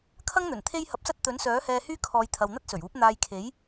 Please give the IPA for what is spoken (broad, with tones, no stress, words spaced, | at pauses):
kʰɐ˥ŋn̪ɵ˨˩n t̪ʰe˥jhɐ˧p̚sɐ˥t̚ t̪ɵ˨˥nsœː˨˥hɛː˧hyː˥ kʰɔː˨˧jt̪ʰɐ˨w n̪ɐ˥t̚sɵ˨˩ɥuː˨˥p̚ n̪aː˧jkʰe˨˥j